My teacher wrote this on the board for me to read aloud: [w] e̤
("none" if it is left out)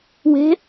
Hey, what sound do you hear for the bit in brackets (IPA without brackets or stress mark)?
w